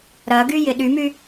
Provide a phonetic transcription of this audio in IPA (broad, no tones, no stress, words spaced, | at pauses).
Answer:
ɾɐɡyjɪ ɗymy